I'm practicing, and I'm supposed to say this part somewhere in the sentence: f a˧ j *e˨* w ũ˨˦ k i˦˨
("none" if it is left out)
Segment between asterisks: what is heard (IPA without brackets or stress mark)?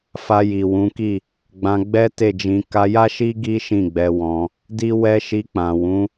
i˨